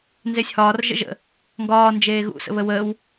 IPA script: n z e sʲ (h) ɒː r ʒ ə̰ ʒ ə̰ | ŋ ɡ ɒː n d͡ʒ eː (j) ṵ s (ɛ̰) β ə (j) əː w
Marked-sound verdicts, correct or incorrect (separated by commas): correct, incorrect, incorrect, incorrect